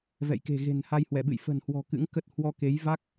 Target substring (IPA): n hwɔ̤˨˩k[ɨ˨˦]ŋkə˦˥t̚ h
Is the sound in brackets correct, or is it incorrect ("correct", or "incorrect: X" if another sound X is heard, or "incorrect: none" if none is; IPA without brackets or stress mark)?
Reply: incorrect: ɨ̰˧˥